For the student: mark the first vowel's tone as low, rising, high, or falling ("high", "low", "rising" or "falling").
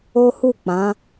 high